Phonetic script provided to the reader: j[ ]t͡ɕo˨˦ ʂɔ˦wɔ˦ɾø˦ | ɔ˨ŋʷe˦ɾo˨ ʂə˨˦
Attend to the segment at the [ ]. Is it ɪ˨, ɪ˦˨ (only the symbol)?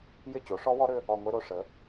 ɪ˦˨